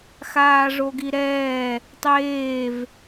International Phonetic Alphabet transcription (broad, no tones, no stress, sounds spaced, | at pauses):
x aː ʐ o ɡ i ɾ ɛː | tˤ eː v